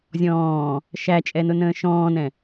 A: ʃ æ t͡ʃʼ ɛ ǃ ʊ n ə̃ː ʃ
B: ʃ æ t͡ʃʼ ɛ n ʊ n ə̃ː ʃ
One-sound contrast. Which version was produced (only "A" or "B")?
B